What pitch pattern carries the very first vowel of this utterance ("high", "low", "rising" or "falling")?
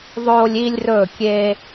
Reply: high